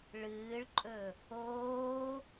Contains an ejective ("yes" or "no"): yes